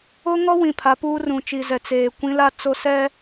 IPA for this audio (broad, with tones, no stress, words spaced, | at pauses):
o˦ŋɔ˦ wĩ˨pʰa˨˦puː˦rũ˨ t͡ʃi˨zɛ˨ t͡seː˨ kʷĩ˦la˦t͡so˦ sɛ˦